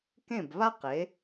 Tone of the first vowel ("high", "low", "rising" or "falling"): falling